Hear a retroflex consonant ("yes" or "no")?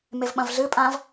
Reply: no